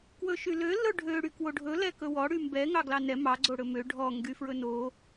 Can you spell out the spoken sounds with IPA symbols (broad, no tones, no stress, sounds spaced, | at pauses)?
k w ɵ ʃ y l ø l ɵ ɖʱ ø ɽ y k w o ɖʱ ɵ l ɛ k ɵ w ɔ ɽ y m b ɛ ŋ ɑ ɡ l ɑ n ɛ m ɑ ɡ͡ǀ o ɽ ɵ m ø ɖʱ ɔ ŋ ɡ y f ɹ ɵ n o